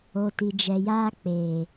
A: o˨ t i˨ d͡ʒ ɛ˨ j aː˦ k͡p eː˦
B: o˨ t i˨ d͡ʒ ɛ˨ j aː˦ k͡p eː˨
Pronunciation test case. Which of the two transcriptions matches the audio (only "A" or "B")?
B